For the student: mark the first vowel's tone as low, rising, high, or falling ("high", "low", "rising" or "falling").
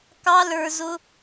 high